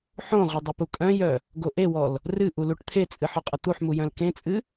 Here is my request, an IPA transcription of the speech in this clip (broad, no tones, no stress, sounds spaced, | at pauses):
ħ õ ʁʷ ə dˤ ə p u kʼ œ̃ j œ | ɡ o ʔ e w ɔ l | r ɨ ʔ u l u ʈ t̪ʰ e t͡sʼ ɨ ħ ɔ qʼ ə t̪ u ħ m u j œ̃ l k ẽ t͡sʼ ɨ